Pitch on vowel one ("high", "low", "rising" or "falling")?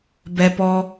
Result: high